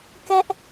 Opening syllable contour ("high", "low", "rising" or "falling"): high